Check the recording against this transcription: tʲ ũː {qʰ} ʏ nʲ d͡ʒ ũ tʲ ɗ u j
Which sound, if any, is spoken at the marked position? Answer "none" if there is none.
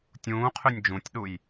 qʰ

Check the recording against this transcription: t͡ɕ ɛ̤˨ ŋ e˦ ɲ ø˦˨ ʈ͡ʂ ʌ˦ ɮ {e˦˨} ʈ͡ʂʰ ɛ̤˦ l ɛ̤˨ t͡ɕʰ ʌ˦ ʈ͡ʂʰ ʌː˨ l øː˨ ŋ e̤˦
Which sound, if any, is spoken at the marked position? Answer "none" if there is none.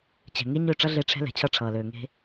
e˦˨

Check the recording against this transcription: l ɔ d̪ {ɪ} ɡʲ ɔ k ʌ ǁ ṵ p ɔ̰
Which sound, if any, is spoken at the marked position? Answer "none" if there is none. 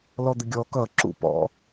ɪ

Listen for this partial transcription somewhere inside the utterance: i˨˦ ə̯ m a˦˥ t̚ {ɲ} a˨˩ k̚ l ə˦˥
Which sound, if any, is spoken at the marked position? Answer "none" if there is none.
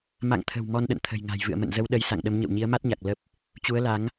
ɲ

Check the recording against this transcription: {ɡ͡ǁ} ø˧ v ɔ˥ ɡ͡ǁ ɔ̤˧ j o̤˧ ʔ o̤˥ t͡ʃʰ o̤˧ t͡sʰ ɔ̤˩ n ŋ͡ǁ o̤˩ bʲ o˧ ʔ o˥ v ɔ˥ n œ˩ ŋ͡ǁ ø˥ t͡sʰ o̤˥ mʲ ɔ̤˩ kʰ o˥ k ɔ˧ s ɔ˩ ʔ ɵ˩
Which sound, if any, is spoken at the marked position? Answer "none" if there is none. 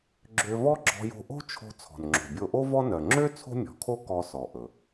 ɡ͡ǁ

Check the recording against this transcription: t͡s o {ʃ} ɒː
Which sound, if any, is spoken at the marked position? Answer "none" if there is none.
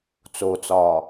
t͡s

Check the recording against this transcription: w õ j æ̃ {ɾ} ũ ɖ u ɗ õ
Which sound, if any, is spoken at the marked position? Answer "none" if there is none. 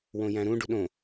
ɾ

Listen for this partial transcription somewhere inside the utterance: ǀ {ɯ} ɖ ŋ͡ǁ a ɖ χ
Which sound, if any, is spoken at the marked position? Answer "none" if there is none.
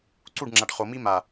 u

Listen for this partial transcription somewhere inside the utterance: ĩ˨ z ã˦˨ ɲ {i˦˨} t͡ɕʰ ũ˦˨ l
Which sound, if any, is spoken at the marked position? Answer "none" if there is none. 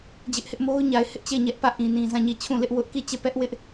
i˦˨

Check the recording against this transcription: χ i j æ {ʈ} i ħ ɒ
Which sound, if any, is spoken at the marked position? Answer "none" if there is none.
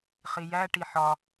ʈ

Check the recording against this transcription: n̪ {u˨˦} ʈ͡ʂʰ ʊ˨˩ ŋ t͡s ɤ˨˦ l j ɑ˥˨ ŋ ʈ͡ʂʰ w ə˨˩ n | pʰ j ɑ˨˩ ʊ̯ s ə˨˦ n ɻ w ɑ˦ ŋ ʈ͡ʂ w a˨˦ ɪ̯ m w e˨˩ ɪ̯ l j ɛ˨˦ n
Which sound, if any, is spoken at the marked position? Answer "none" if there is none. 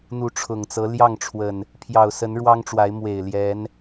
u˨˦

